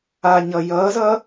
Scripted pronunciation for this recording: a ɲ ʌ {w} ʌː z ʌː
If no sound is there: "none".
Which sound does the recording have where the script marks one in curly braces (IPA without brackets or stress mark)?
j